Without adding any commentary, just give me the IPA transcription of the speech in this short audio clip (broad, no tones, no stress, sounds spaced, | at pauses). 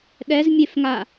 ɗ ɛ z mʲ e f ŋ a